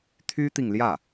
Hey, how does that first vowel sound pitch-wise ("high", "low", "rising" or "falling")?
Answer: high